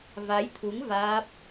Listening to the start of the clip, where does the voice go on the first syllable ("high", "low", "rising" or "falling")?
rising